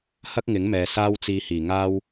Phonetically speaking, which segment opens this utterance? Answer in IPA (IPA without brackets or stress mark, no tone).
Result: h